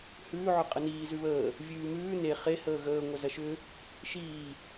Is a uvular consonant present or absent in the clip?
present